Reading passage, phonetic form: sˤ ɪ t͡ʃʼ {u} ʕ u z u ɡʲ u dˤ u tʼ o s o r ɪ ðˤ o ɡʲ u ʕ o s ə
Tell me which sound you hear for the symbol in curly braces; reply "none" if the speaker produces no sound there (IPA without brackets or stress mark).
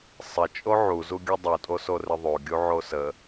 o